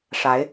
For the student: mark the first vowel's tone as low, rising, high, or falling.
rising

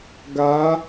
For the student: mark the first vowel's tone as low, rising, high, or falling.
rising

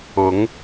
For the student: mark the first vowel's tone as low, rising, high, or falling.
rising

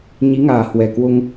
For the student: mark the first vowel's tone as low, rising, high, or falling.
rising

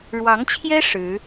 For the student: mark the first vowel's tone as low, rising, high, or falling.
rising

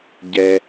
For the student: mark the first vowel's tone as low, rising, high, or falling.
high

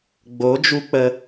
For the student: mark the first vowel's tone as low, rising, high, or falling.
rising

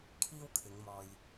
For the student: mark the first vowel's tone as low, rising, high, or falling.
high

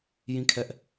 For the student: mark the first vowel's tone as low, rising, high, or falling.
falling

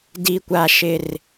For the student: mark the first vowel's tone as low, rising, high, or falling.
high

